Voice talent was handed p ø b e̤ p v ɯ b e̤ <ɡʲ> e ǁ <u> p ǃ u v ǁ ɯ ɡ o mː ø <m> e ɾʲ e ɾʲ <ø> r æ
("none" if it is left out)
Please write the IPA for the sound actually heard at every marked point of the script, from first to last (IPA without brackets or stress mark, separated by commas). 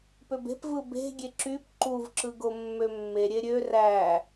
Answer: ɡʲ, y, mː, ø